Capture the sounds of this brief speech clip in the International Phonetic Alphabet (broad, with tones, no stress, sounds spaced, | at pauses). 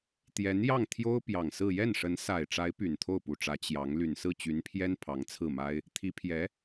t̪ j ɛ˧˥ n j ɑ˥˩ ŋ t̪ʰ j o˥ ʊ̯ p j ɑ˨˩ ŋ s ɹ̩˥˧ j ɛ˥˩ n ʂ ə˧˥ n s a˨˩ ɪ̯ ʈ͡ʂ a˧˥ ɪ̯ p y˨˩ n t̪ʰ o˥˩ ʊ̯ p u˨˩ ʈ͡ʂ ä˧˥ t͡ɕ j ɑ˧˥ ŋ l y˨˩ n s ɹ̩˥˩ t͡ɕ y˧˥ n pʰ j ɛ˥ n pʰ ɑ˧˥ ŋ t͡sʰ ɹ̩˥˩ m a˥ ɪ̯ | t̪ʰ i˧˥ pʰ j ɛ˧˥